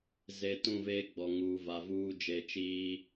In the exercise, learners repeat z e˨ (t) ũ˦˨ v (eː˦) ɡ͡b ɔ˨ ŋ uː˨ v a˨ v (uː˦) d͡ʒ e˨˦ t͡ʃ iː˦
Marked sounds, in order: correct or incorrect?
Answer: correct, correct, correct

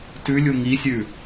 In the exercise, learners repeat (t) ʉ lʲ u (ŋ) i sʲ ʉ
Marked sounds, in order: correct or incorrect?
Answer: correct, correct

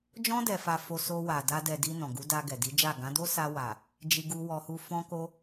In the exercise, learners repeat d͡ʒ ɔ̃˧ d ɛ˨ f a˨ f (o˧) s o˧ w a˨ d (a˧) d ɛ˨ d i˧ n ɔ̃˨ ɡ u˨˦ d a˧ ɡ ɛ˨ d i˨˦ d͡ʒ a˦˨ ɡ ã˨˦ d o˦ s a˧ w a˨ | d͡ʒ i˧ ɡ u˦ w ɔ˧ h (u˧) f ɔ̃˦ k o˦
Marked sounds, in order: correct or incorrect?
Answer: correct, correct, incorrect: u˦

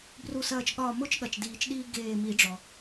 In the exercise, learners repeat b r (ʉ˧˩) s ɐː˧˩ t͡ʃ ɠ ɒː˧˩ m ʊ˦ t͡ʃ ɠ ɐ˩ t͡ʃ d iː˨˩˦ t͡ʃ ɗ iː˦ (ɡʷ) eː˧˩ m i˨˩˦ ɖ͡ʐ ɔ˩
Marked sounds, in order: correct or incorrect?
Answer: incorrect: u˧˩, incorrect: ɡ

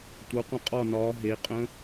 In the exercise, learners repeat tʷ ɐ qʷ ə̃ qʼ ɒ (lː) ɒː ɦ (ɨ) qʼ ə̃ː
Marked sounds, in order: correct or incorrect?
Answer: incorrect: n, incorrect: e

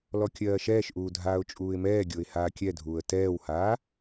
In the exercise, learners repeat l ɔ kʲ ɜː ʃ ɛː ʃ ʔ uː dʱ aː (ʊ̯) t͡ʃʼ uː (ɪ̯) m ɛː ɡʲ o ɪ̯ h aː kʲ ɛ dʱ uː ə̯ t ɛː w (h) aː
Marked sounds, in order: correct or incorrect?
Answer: correct, correct, correct

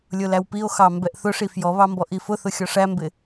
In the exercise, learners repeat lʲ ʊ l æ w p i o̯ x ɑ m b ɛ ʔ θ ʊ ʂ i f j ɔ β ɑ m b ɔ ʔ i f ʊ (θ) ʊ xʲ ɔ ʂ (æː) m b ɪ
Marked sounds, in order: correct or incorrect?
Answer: correct, incorrect: æ

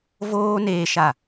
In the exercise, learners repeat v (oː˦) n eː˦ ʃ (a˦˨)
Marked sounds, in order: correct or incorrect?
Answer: correct, correct

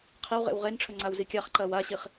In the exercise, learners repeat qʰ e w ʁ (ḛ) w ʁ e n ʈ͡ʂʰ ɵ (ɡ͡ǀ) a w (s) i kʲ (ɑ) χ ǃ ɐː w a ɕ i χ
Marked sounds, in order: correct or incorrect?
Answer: correct, incorrect: ŋ͡ǀ, incorrect: z, incorrect: a

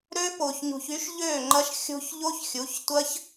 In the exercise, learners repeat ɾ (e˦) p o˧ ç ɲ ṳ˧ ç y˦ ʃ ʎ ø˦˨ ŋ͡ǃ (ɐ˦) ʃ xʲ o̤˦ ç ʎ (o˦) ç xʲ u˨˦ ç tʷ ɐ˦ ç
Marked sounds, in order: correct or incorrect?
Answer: incorrect: ø˦, correct, correct

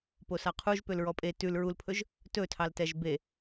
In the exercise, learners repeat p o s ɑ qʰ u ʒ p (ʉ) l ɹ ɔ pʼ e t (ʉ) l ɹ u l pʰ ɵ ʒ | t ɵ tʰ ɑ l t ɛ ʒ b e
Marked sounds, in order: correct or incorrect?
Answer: incorrect: ø, correct

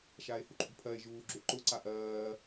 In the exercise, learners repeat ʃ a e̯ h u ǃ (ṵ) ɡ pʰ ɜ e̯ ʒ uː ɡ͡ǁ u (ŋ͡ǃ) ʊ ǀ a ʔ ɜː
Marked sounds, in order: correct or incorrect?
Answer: correct, incorrect: ǃ

